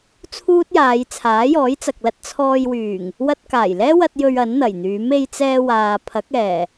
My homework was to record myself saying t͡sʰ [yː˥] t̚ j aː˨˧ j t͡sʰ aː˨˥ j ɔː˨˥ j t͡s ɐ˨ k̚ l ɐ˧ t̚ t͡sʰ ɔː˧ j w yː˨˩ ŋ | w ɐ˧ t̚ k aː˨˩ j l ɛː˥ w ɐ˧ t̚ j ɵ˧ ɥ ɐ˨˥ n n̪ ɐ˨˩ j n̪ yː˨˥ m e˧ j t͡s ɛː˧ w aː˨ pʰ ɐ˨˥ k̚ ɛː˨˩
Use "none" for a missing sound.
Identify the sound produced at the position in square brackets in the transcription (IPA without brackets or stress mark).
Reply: uː˥